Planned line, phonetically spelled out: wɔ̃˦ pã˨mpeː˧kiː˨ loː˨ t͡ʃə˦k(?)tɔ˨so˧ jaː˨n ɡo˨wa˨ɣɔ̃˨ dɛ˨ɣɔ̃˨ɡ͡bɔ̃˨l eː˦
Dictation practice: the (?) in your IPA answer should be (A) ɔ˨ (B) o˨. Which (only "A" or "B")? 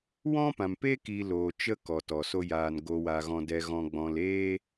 A